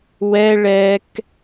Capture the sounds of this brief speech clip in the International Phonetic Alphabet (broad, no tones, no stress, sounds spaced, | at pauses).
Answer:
w ɛ ɭ ɛ k